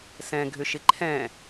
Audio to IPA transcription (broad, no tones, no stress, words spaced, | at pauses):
sɛ̃ɡʱʏʃɪ ǃʰɛ̃